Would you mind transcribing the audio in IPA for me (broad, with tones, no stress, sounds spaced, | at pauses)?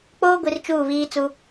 k͡p oː˦ ɡʷ i˨ r t͡ʃ uː˦˨ β iː˦ t͡s u˦